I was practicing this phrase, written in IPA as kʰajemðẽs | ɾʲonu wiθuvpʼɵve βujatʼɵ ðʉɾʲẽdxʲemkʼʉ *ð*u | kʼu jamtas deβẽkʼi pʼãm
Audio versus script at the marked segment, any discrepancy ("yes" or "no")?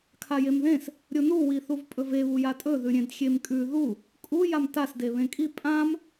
no